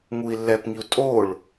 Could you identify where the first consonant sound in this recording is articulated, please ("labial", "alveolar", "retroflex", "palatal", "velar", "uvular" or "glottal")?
velar